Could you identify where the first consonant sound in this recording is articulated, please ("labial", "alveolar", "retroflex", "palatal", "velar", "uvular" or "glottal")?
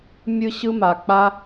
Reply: labial